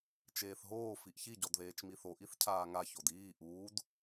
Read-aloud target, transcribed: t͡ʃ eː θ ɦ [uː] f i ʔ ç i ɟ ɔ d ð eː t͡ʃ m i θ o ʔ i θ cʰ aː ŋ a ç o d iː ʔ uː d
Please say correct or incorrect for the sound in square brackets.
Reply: incorrect